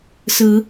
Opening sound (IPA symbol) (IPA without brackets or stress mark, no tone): s